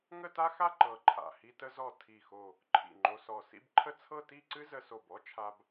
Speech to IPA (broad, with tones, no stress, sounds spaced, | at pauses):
ŋ ə˥˧ t a˥ x a˥˧ ǃ ɤ˧˩ ǃʰ a̰˧˩ h i˧ t ə˧ z ɔ˧˩ tʰ i˧˩ x o˧˩ | ǃʰ ḭ˧˩ ŋ͡ǃ o˧ s ɔ˧˩ s ḭ˥˧ b ǃʰ ə˥˧ t͡sʰ ɤ˥˧ t i˥˧ ǀ ɨ˥ z ə˧ s o˧˩ b ɔ˥ t͡ʃʰ a˧ b